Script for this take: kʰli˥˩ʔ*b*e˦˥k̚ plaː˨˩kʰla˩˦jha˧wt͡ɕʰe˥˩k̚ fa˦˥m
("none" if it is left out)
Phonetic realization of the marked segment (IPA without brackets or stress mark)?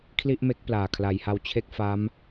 m